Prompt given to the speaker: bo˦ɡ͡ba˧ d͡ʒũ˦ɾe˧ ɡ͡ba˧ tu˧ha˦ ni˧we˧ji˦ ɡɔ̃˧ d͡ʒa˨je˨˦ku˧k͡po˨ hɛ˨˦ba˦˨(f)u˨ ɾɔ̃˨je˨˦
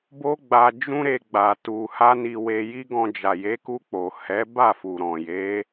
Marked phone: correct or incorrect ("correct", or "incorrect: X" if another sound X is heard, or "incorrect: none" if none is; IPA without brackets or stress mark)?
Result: correct